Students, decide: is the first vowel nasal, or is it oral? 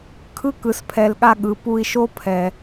oral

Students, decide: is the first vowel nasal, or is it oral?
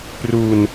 oral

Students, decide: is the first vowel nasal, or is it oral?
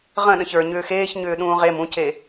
nasal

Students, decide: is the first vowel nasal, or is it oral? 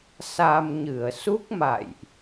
oral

